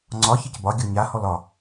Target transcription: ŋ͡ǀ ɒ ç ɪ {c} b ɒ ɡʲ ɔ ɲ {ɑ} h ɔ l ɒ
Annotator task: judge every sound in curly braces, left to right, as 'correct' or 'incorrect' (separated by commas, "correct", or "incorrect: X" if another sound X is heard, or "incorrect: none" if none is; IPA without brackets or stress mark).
correct, incorrect: a